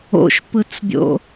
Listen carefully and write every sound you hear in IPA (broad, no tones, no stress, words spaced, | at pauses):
o̰ʃpɯt͡sbʲo̰